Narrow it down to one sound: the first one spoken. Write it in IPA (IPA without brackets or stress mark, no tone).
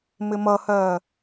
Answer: m